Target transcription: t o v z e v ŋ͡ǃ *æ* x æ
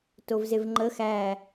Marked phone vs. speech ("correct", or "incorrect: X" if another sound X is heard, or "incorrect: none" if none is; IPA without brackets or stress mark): incorrect: ə